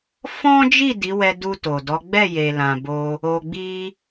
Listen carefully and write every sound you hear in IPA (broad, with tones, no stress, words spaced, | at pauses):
fɔ̃˦d͡ʒi˦˨ di˨˦wɛ˧ du˧ to˨dɔ˨˦ ɡ͡bɛ˦˨je˨ lã˨bo˧ | o˧ɡ͡bi˦